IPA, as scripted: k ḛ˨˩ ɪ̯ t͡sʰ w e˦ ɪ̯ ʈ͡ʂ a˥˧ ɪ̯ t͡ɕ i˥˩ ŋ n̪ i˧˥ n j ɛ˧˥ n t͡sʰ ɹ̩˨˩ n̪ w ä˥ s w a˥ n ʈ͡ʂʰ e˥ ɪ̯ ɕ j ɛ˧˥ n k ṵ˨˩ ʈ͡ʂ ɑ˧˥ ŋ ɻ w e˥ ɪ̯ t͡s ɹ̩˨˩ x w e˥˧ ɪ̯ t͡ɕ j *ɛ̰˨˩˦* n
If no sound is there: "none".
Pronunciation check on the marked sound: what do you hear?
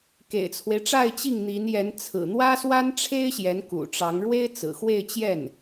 ɛ˥˩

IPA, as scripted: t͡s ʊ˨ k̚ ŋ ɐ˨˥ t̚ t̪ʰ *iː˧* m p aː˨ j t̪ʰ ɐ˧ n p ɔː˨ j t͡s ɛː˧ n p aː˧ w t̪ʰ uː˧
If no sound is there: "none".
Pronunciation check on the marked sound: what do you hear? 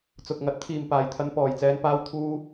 iː˨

